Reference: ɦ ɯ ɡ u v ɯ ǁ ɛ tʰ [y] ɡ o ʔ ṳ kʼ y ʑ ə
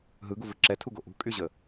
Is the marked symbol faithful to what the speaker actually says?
no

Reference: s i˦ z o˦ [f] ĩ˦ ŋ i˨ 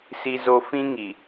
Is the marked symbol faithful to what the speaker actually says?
yes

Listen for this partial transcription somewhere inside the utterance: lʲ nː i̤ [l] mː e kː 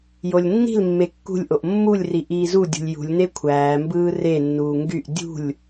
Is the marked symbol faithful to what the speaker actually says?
yes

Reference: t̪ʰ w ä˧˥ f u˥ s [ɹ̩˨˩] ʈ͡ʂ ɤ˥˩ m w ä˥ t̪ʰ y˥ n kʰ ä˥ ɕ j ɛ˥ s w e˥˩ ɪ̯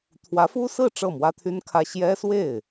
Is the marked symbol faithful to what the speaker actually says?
no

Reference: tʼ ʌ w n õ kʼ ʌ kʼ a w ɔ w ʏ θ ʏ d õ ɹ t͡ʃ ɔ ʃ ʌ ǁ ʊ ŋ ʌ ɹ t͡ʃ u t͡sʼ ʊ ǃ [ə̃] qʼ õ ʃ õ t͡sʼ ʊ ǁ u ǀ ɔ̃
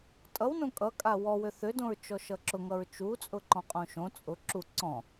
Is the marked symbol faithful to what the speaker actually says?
no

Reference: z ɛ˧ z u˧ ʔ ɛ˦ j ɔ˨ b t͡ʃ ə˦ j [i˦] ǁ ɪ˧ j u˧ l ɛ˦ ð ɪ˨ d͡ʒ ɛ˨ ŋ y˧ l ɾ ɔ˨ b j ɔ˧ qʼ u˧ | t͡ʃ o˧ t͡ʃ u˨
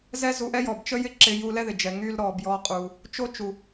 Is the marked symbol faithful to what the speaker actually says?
no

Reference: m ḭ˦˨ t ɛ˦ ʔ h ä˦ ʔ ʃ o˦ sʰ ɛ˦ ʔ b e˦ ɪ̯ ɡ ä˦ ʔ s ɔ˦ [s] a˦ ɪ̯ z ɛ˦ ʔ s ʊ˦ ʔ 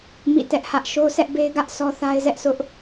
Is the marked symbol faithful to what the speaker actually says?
no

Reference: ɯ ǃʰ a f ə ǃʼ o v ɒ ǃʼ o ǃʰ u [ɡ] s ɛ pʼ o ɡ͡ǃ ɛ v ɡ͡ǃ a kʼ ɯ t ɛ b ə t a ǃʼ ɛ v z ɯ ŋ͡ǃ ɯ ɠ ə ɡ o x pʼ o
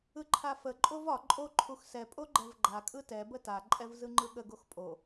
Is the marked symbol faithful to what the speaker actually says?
no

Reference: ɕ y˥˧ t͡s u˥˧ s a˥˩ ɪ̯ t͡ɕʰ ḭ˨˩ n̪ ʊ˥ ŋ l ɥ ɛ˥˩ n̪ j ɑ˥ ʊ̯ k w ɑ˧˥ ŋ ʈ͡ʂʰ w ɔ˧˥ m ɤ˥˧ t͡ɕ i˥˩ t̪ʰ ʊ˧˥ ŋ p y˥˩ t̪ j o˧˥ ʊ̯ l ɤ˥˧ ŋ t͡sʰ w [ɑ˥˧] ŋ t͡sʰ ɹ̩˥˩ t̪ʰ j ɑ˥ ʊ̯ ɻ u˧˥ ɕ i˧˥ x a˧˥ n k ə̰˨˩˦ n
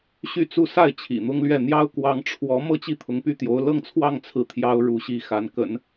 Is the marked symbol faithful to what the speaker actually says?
yes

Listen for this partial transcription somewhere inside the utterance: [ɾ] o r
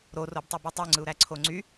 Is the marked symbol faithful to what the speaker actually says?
yes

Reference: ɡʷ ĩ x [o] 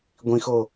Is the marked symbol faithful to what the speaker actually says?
yes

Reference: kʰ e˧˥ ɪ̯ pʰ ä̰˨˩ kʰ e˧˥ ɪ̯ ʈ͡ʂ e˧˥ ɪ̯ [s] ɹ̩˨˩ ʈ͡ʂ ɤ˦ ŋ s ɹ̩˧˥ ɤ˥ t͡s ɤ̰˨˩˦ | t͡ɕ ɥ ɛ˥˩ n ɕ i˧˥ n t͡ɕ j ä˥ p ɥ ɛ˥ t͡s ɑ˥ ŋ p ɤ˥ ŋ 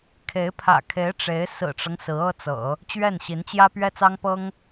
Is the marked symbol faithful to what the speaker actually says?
yes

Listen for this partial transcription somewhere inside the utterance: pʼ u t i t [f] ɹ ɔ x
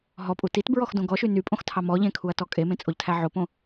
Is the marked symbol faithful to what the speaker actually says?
no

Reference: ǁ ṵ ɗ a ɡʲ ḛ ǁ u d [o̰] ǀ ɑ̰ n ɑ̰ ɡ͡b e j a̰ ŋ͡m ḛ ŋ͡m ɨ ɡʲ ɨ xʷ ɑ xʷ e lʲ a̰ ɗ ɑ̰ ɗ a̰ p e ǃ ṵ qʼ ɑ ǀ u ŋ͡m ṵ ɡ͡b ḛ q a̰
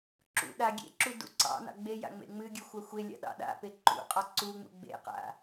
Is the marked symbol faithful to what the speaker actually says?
no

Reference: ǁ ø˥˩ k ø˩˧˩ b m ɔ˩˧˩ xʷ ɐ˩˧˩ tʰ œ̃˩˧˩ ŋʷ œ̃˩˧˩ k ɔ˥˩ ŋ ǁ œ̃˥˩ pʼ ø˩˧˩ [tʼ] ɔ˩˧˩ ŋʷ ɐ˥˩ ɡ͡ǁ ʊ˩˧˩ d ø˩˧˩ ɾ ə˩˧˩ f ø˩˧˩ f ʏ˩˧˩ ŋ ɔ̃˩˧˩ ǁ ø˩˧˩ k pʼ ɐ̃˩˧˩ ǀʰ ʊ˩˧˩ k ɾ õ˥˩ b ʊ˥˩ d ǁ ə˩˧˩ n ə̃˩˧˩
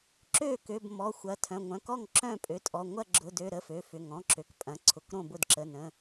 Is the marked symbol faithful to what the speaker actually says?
yes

